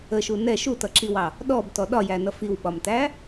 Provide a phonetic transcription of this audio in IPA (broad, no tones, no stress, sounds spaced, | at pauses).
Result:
ə ʃ u n ɛ ʃ u t ʌ ǁ i w ɑ | ɗ ɔ b t ɔ ɗ ɒ j æ n ʌ f i w ɓ ɒ m t æ